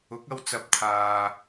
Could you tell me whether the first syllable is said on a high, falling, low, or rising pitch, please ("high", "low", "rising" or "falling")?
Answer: rising